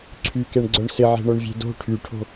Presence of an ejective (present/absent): absent